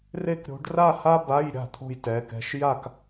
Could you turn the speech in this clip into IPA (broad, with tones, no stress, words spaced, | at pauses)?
re˥kɾʲo̤˧˥ɖ ra˥˧ ha˥ba˧˥˧jɾʲa̤˥˩ t̪ʰo̤˥˧jtɛ˧˥kɛ̤˧˥˧ʃ ja˥˧k